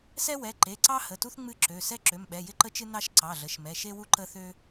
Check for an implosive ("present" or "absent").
present